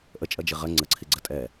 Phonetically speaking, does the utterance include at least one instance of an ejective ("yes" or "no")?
yes